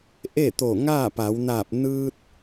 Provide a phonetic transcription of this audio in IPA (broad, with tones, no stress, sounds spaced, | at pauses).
ʔ e˥˨ t̪ o˧˩ ŋ aː˥˨ p a˩˧ w n aː˧˩ p̚ n ɯː˧ t̚